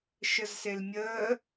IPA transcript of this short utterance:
ʃ ə z s e l mʲ əː

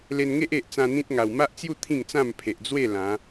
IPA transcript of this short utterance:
l e˧ n ŋ e˦ ʔ e˨ ʔ t͡s ã˧ n̪ ĩ˦ t̚ ŋ a˨˩ w m a˦ ʔ t͡s j u˥˧ t̪ʰ ĩ˥˧ ŋ t͡s ã˥˧ m pʰ e˨ ʔ d͡z w e˥˧ l ã˨˦

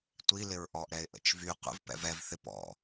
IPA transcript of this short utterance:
tʷ i l ɪ ɹ ʔ ɔ ʔ ɾ ɛ ɪ̯ ʔ ə̰ t͡ʃ v y qʷ ə̰ v p ɛ̰ v ɛ v θ ɪ p ɔ̰

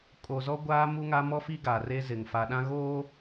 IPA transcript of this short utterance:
kʼ o˨ z ɔ˦ ɡʷ aː˦ m u˦ ŋ a˦ m ɔ˦ f i˦ ɡ a˨ r e˦ z ɪ˨ ŋ f a˨ ɗ ã˦ ɣ oː˦

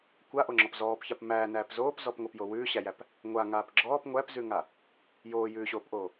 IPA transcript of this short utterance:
kʷ a ʔ o ŋ͡ǁ ɔ p z ɔː p ç a p m æː n æː p z oː p z ɔ p ŋ o p j o w ʉː ɕ æ j æ p | ŋʷ a ŋ aː p ɡ͡ǁ ɔː p ŋʷ æ p z ʉ ŋ a | j oː j ʉː ɕ oː p ʔ oː

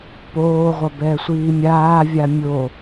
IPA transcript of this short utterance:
p oː ʁʷ ʌ b ɛ sʷ iː mʲ aː vʲ a mʲ o

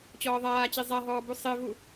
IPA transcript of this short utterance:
t͡ɕ ɔː ðˤ aː t͡ɕ i zˤ a ɦ ɔː b u sˤ e v u

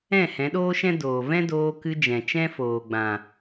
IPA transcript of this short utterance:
ɛ̃˦˨ h ɛ̃˨˦ ɗ oː˦ ʃ ɛ̃˦ d oː˨ v ɛ̃˦ d oː˧ k ɨ˧ d͡ʒ ɛ̃˨ t͡ʃ ɛ̃˦ f oː˨ ɡ͡b ã˨

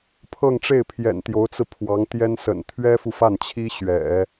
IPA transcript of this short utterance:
pʰ ɤ˥˧ ŋ ʈ͡ʂ e˥˩ ɪ̯ pʰ j ɛ̰˨˩ n t̪ j o˧˥ ʊ̯ t͡s ɹ̩˧ pʰ w ɑ˧˥ ŋ t̪ j ɛ˥ n s ə̰˨˩ n t̪ʰ ɥ ɛ˥ f u˨ f a˥˩ n t͡ɕʰ i˥ ɕ ɥ ɛ̰˨˩˦

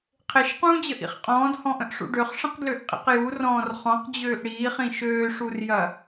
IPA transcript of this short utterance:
qʰ e ʃ q ũː d͡ʑ ə ʔ ḭ χ qʼ ɔ̃ː d h ɔ̃ ʔ ə̃ ʔ ʂ ṵ ɖ ø χ ʂ ə̃ q d l ø ʔ qʼ ḭ q j u r ɔ̃ː r χ ɔ̃ q d͡ʑ øː ʔ ɽ iː χ ĩ ʃ øː ʂ u r j ɐ

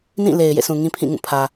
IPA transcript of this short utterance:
n ĩ˦˨ l e˨ ɪ̯ j ḛ˦˨ s ũ˨ ŋ ĩ˦ pʰ ĩ˦˨ ŋ ũ˦˨ pʰ ä˨

